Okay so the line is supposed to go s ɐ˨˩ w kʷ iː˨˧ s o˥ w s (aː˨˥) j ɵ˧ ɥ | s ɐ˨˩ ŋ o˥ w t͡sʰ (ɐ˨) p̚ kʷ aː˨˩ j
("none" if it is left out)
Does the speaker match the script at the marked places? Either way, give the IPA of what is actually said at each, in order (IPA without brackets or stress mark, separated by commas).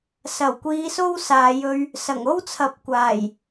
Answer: aː˨, ɐ˨˥